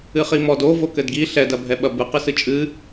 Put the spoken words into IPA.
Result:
ɨ χ i m ɔ d o v o k ɘ d ɡ i ɬ ɛ d ɐ bʱ ɛ ɓ ɐ b ɨ q ɨ s ɨ t͡ʃʼ ɨ

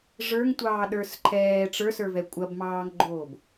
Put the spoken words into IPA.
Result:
ʐ ə˞ ŋ tʷ ɑː ɗ ə˞ s ǃʰ ɛː ʈ͡ʂ ə˞ s ə˞ v ɛ kʷʼ ɐ b m ɑː ŋ ɡ͡ǃ oː b

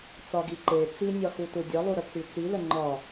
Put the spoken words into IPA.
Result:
t͡s ɒ ɡ i ǃ e t͡s i nʲ ɒ x u t u dʲ ə lˠ u ɾ ə t͡s i t͡s i l ə ŋ͡ǃ ɒ

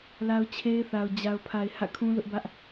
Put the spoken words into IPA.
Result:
l a˦ ʊ̯ t͡ɕʰ e˦ ɪ̯ θ a˨ ʊ̯ d͡ʑ a˨ ʊ̯ pʰ a˨ ɪ̯ h ä̰˦˨ kʰ ũ˦ l ʊ˦ ʔ b ä˦ ʔ

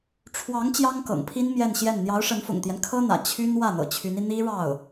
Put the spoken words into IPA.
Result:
ʈ͡ʂʰ w ɑ˧˥ ŋ t͡ɕ j ɑ˥ ŋ k ɤ̰˨˩ ŋ pʰ i˥ n m j ɛ˥˧ n ɕ j ɛ˥˩ n n̪ j ɑ˧˥ ʊ̯ ʂ ə˧˥ n f ʊ̰˨˩ ŋ t̪ j ɛ˦ n kʰ ɤ˥ n̪ ä̰˨˩ t͡ɕʰ y˥ n w ä˥˩ n̪ ɤ̰˨˩ t͡ɕʰ y˧˥ n i˧ n̪ i˥ ɻ ɑ˥˩ ʊ̯

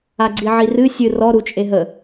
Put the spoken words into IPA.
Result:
a ɡ͡ǀ i ʕ i r ɨ sʲ ɨ r ɔ ɾ u t͡ʃʼ e ɦ ə

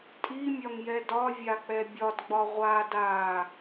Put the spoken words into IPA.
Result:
tʼ i mʲ ɒ ŋ j ɛ d ɒ vʲ a k͡p ɛ bʲ ɒ d ɡ͡b ɒ ʁʷ a d a

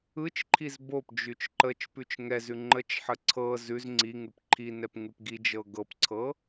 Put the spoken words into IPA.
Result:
ɯ t͡ʃ ǃʰ i z b o p d͡ʒ ʉ t͡ʃ ǃ ə t͡ʃ p ʉ t͡ʃ ŋ ɛ z ʉ ŋ͡ǃ ə t͡ʃ ħ ə ǀʰ ɤ z ʉ z ŋ͡ǀ i ŋ ʉ p ǃʰ i n ɛ p ŋ ʉ p ɡ i d͡ʒ ɤ ɡ ɤ p ǀʰ ɤ

